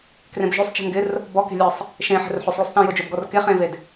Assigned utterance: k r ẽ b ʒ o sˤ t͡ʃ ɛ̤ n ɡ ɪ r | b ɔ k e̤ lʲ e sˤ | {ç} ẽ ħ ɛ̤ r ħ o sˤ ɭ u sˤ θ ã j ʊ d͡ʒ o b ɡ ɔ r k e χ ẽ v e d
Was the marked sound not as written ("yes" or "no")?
yes